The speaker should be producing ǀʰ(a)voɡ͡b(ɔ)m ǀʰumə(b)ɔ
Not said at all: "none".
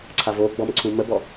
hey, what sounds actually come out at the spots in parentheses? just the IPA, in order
a, ɔ, b

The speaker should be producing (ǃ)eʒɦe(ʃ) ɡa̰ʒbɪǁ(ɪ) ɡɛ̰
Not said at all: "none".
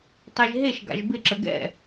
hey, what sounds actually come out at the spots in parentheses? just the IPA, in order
tˤ, ʃ, ə

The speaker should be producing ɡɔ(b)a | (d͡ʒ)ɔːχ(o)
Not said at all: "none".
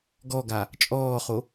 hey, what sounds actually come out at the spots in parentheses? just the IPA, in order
ɡ, t͡ʃʼ, o

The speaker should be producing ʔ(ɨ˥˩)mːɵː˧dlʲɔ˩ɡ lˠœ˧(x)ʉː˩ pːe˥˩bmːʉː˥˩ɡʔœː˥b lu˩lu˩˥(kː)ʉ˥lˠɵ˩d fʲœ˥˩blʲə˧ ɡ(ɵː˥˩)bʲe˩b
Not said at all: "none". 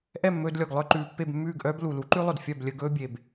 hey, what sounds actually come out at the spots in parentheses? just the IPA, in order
ɛ˥˩, ǃ, ǃ, ɵː˥

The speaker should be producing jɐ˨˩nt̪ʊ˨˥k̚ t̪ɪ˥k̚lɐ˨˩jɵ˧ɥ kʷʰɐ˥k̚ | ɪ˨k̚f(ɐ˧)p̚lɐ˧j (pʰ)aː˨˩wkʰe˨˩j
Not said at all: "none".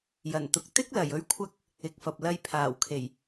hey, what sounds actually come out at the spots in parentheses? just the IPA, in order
ɐ˨, pʰ

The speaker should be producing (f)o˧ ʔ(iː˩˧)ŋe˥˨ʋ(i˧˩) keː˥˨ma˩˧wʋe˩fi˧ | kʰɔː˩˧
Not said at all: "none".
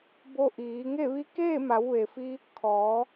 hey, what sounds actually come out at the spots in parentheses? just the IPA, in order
b, iː˩˧, i˧˥

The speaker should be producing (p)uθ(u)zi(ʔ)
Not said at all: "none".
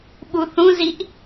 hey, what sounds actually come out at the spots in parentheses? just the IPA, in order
ɓ, ũ, ʔ

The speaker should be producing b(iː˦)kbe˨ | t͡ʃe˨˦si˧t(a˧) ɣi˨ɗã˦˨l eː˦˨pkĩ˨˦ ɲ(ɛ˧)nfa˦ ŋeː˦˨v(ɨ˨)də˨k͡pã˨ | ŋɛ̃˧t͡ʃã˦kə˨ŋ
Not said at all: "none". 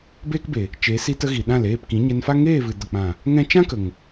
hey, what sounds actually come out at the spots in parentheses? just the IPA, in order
eː˦, ə˧, ɛ˧, ɨ˨

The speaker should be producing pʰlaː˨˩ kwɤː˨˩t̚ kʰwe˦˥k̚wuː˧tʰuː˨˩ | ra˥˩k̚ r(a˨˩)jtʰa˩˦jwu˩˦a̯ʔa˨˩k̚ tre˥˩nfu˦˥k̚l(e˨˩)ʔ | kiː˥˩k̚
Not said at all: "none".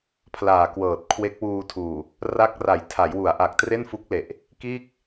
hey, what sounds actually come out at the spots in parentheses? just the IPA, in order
a˩˦, e˨˩

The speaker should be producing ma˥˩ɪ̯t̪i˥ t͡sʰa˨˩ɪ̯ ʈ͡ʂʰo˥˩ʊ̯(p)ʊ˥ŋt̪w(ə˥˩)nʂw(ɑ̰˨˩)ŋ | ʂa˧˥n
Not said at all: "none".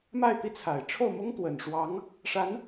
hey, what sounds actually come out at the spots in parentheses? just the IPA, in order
m, ə˨˩, ɑ˧˥

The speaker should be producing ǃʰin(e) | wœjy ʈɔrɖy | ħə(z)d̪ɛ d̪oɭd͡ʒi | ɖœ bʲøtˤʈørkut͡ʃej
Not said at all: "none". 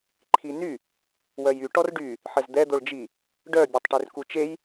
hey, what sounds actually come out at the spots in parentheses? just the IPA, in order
y, z

